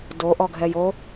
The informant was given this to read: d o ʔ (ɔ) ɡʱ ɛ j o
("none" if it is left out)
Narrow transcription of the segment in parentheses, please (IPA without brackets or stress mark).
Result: ɔ